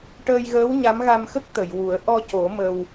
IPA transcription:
ʈ əː˧ j ɣ əː˧˥ w ɲ a˧˥ m ɣ a˧ m x ə˦˥ k̚ t̪ ə˨˩˨ j w u˨˩˦ ə̯ ʔ ɔ˧ c o˨˩˦ m ə˧ w

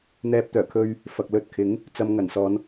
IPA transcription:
n̪ ɛː˧ p̚ t̪ œː˨˩ kʰ ɵ˧ ɥ | f ɐ˨ k̚ l ɵ˧ t̚ kʰ ɪ˨˥ ŋ | t͡s ɐ˧ m ŋ ɐ˨˩ n s ɔː˨˧ n

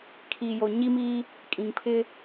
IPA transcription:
kʰ iː˨ j o˨ ɲ i˦ m iː˦ | kʼ ĩ˨ ŋ pʰ ɪ˦

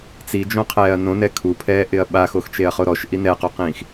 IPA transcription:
t͡s i d͡ʒ õ qʰ ɛː ɐ̯ n õ n ɛ kʰ u pʰ ɛː ʔ ɪ ɐ̯ ɓ a x o x t͡ʃ e ɐ̯ χ o ɾ ɔ ʃ ʔ i n ɛ q o q ĩː x

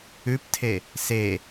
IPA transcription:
ʉ p tʰ e | s e

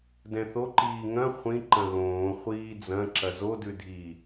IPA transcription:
d ɛ̃ θ o ǃ iː ŋ ɐ̃ χʷ ĩ ǃ ɐ̃ ɣ õː χʷ iː d͡z ɐ̃ ǁ ɐ z o d ʉ dʱ i

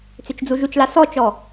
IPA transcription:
t͡s ʏ t͡ʃ d͡z u ʒ u t͡ʃ l a s ɔ t͡ʃ ɔ

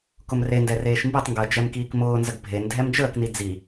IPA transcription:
k ʊ m r e n d ɛ r eː ʃ m b i tˤ ŋ ɡ əː d͡ʒ ɛ m k iː k m ʊː n z ə ɡ bʱ e n dʱ ɛ m d͡ʒ əː k n i d͡z i

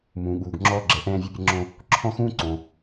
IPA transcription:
m ũː˩ ɠ uː˩ ɡ ŋ͡ǁ ɔː˧ ɡ͡ǁ ɛ˩ ʔ ɛ̃ː˧ vʲ u˧ pʲ ɛ˧ ŋ͡ǁ õː˧ | ǁʰ ɔ̃˥ x ũː˥ ǀ õː˩

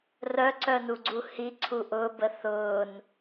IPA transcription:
r œ ǀ œ n u ɡ͡ǀ u h i ǀʰ u ʔ ʊ b ə θ ʊː n

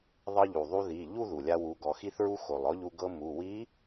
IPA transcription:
ðˤ ɤ˧ ʎ u˩ ðˤ u˧ ð i˩˧˩ ʎ u˥˧ ð u˩ lʲ a˧ w u˩˧ ɡ ɔ˩˧ x i˧ θ ɹ u˧ x o˩ lˠ ɔ˧˥ ʎ u˧ ɡ ɤ˧ m u˩˧˩ w i˧˥

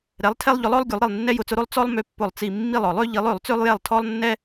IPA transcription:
ɾ ɛ˨˥ lˠ tʰ ɛ˦ lˠ ʎ ʊ˨˥ lˠ ɔ˦ lˠ ɡʲ u˨˥ lˠ ɾ i˦˨ lˠ nː ɛ˦ j ʊ˨˥ t͡s ʊ˨˥ ɾ o˦ lˠ t͡s ɔ˦ lˠ m ø˦ pː ʊ˦˨ lˠ t͡s i˦˨ mː i˦˨ lˠ ɔ˨˩˦ lˠ ø˨˥ ʎ i˨˥ lˠ ø˨˩˦ lˠ t͡s ø˦ lˠ j ɛ˦˨ lˠ tʰ ɔ˦ lˠ nː ɛ˦

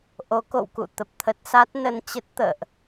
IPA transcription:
ʔ o˨˦ k o̰˧˨ w k ṵ˧˨ t̪ ə˨˩ p̚ t̪ʰ ə˦˥ t̚ s a˦˥ t̚ n ə˧ n t͡ɕ ə˦˥ t̚ t̪ ə̰ː˧˨ ʔ

